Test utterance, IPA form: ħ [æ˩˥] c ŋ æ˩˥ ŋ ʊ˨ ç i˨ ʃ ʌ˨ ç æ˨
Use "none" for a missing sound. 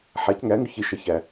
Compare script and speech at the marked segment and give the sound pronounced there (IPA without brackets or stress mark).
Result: æ˩˥